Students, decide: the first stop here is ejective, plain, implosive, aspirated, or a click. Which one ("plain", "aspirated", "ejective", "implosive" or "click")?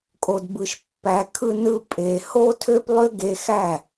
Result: ejective